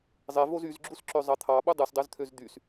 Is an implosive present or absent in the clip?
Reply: present